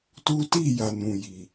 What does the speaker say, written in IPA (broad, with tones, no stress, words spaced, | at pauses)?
tu˦ ti˦˨ja˨ nũ˨ji˨